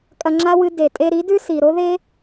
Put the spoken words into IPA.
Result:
kʼ ɐ˧ ŋ͡ǁ a˦ w ɨ˧ d e˨ tʼ e˧ ɾ i˨˦ d ʉ˦ s i˨ ɾ o˦ ð e˦

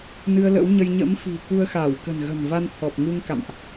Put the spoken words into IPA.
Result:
n ɨ˧ ə̯ l ə̰˧˥ w ɲ ə˧ j ɲ ə̰˧˥ m f i̤˨˩ k u˧ ə̯ x a˧˩ w k ə̤˨˩ n ɣ ə̤˨˩ n v a˧ n t̪ʰ ɔ˨˩ p̚ ŋ u˧ ŋ k a̰˧˨ m ʔ

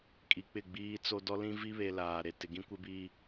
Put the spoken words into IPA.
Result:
kʼ i˨ k͡p ɪ˦˨ ɡ͡b iː˦ t͡s o˦ d ɔ˦ l ĩ˦ v i˦ β e˨ l aː˨ ɾ e˨ t ɪ˨ ɡ ĩ˦ kʷ ɪ˦ b i˦

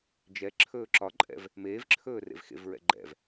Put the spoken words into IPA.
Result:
d͡ʒ ɛ ǁʰ ɵː ǁ ɒ ǃʼ ɛ̰ v | m eː v ǁʰ ɵː r ḛ v x ḛ v ɹ ɛ̰ ɡ͡ǃ ɛ̰ v

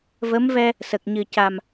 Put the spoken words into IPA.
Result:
v ə˧˥ m v ɛ˧ | s ə˨˩ k̚ ɲ ɨ˨˩ c a˨˩ m

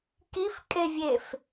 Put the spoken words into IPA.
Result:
k i f kʼ e vʲ e f

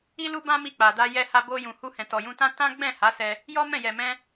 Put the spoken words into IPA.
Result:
i˧ l u˧ b ã˧ m i˧ k͡p a˨ d a˧ j ɛ˧ h a˧ b o˧ j ũ˨ h u˧ h ɛ̃˨ t ɔ˨ j ũ˧ t ã˦ t ã˦ ɡ͡b ɛ̃˦˨ h a˨˦ s ɛ˧ | j ɔ˦ m ɛ̃˦˨ j ɛ˨ m ɛ̃˧

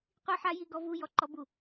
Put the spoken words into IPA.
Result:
qʷ i˦ ħ a˦ j i˦ ɡ ɔ˦ v u˦ j ɔ˦ ǃ ɔ˦ b u˦˨

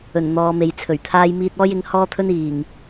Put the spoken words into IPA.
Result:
ɵ˨˩ n n̪ ɔː˨˧ m e˨ j t͡sʰ ɵ˨˩ ɥ t̪ʰ aː˥ j m iː˧ t̚ ɔː˥ j ɪ˨˥ ŋ h ɔː˥ t̪ʰ ɵ˥ n iː˨˩ ŋ

